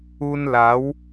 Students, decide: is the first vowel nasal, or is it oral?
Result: oral